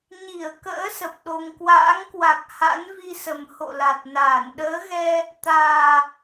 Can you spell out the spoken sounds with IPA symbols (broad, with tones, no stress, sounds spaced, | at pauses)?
ɲ i˧˩ ə̯ k ə̰ː˧˥ s ə˨˩ p̚ ɗ o˧ ŋ k w a̰ː˧˥ ŋ k w a˨˩ k̚ h a̰˧˥ n v i˧ s ə˨˩ m h o̰˧˨ l a˨˩ t̚ n aː˧˩ n ɗ əː˨˦ ɣ ɛ˧ | t̪ aː˨˩